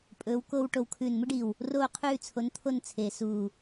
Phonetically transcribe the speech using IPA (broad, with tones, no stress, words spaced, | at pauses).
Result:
pʼɵː˨˦w koː˥w ʈo˧˩wkʰʉː˧˩nmɨ˥ɖi˧˩w | roː˥˧qʰʉː˥˧ t͡sʰo˨˦nt̪ʰo˥˧n t͡sʰeː˧˩suː˧˩